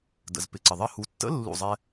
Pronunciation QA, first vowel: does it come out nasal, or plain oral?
oral